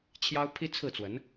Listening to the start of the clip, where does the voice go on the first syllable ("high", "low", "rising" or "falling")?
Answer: high